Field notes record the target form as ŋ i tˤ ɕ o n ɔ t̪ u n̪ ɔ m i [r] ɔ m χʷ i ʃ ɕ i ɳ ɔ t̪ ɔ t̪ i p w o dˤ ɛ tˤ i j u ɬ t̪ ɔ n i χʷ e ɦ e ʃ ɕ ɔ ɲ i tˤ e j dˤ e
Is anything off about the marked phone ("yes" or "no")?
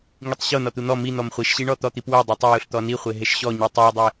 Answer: yes